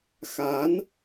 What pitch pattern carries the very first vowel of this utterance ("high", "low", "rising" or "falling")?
rising